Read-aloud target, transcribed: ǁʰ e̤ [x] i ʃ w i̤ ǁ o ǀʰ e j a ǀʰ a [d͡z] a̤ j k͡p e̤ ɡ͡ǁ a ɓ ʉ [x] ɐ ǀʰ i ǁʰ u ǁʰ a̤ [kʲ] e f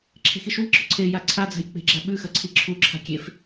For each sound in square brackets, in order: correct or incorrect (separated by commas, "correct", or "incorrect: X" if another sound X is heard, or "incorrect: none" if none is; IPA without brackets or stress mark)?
correct, correct, correct, correct